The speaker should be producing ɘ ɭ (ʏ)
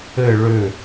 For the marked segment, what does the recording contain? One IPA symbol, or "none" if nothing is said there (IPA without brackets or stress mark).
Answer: ʏ